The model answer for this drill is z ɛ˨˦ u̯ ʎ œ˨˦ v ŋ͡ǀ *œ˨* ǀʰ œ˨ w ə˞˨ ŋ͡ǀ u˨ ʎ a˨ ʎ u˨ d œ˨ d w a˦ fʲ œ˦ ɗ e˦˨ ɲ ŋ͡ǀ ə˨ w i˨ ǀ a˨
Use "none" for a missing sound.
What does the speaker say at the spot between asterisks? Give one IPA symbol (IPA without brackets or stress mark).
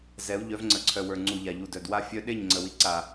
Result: ə˨